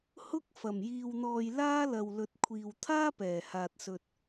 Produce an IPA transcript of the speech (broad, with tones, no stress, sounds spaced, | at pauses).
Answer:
h ʊ˥ k̚ f ɐ˨˩ m j iː˨ w n̪ ɔː˨ j l aː˥ l ɐ˨ w l ɵ˨˥ t̚ kʷʰ iː˨ w t̪ʰ aː˥ p ɛː˨˩ h aː˨ t̚ s ɵ˨ t̚